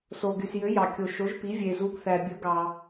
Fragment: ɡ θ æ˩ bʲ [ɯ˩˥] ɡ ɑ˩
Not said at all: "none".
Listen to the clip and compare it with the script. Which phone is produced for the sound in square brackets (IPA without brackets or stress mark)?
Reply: ɯ˩˥